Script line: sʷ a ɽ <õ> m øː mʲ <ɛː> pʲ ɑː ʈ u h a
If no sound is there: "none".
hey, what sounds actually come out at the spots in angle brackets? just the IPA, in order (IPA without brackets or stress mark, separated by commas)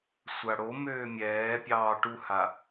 o, ɛː